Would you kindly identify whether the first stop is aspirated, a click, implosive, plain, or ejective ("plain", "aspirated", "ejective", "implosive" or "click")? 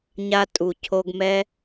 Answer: ejective